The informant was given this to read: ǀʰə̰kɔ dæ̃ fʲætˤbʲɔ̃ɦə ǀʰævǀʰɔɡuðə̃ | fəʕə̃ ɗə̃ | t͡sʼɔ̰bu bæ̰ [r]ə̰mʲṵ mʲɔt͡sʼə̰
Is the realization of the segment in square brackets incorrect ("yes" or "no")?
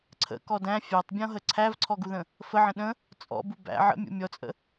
yes